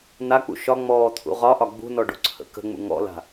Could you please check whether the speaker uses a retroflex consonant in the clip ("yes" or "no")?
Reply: yes